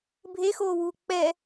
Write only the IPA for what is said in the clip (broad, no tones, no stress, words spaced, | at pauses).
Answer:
bʱexoːwuː k͡pɛ